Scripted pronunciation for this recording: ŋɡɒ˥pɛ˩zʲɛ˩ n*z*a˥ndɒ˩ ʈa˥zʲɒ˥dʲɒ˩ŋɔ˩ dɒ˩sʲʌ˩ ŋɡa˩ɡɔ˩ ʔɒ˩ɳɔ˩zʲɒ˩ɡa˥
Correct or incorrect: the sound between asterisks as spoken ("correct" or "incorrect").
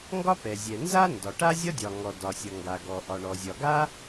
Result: correct